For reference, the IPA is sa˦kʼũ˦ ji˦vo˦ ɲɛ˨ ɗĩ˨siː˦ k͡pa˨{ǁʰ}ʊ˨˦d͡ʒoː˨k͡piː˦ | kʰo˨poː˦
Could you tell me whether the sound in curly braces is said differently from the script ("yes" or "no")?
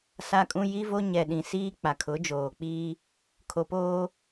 yes